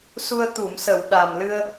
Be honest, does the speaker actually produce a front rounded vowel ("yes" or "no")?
no